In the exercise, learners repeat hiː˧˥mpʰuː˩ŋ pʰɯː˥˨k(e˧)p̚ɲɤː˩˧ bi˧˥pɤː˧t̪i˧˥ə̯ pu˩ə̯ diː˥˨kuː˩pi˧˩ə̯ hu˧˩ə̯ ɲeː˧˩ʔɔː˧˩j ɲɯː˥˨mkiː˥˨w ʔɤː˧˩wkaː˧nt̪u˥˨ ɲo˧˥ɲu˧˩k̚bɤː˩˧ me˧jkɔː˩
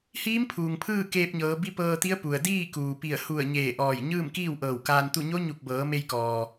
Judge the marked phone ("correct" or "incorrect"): incorrect